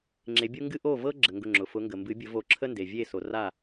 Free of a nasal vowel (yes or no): yes